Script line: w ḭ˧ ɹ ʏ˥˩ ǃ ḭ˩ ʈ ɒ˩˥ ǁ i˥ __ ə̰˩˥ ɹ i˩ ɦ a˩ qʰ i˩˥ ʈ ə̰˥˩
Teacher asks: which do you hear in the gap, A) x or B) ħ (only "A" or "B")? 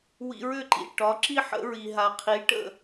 B